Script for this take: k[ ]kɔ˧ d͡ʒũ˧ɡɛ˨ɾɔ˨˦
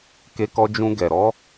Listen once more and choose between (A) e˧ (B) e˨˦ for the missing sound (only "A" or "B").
A